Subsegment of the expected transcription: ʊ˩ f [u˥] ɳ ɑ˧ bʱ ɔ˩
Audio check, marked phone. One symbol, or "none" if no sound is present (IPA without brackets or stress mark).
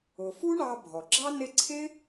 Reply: u˥